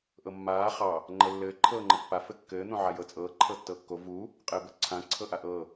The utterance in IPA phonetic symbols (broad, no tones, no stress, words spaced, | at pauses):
ʔɤmːaː χɑ | ŋ͡ǃɤlːɘː ǃʰɤːŋ͡ǃɤpːa fɘkːɘː n̪õʕajɤt͡sʼɤː ǃʰɤtːɤːkːo vuː | qʼɘːbɤǀʰã ǀʰɤʔaʔɤː